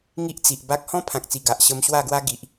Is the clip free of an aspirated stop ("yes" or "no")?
no